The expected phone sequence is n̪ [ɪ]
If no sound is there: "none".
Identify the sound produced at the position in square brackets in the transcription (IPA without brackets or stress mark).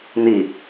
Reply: i